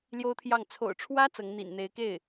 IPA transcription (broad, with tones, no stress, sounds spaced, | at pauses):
l j o˥ ʊ̯ t̪ʰ j ɑ˥˩ ŋ t͡sʰ o̰˨˩ ʊ̯ ʈ͡ʂʰ w ä˥ t͡s ɤ˧˥ ŋ n̪ ḭ˨˩ n n̪ e˧˥ ɪ̯ k e˥˩ ɪ̯